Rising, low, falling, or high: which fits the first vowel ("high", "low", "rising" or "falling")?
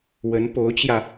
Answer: rising